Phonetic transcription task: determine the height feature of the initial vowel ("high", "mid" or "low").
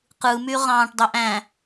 high